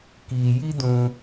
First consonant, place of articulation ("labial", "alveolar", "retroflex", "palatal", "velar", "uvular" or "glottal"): velar